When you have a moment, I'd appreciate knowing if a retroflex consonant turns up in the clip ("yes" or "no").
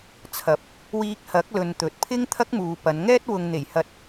no